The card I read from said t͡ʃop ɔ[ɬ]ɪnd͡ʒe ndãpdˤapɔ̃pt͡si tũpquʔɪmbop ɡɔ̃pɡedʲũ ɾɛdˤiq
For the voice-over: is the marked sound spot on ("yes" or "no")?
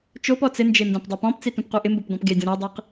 no